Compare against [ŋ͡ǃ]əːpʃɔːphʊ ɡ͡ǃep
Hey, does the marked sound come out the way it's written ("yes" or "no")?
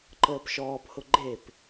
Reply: no